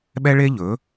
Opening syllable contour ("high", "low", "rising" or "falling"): high